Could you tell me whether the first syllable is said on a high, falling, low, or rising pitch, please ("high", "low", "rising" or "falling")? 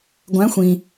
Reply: rising